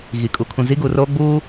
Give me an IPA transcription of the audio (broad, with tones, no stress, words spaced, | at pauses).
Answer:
ɣi˨kʼu˨ kʰũ˨zi˦ɡuː˨roː˦ ɡ͡buː˦